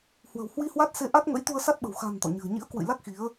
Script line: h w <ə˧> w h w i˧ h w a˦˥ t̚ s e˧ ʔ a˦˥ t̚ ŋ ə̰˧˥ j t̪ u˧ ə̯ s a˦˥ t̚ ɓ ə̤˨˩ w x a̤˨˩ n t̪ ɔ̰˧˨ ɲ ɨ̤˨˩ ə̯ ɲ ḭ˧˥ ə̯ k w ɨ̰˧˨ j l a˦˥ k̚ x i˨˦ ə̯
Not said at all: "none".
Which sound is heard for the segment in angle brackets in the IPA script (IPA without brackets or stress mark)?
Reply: ə̤˨˩